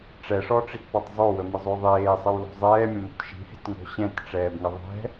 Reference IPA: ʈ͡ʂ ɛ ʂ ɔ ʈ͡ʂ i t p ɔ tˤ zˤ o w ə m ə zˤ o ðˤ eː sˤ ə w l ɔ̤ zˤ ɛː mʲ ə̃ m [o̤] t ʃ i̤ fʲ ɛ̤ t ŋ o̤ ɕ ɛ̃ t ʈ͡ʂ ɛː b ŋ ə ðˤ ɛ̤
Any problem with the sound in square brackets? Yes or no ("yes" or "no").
no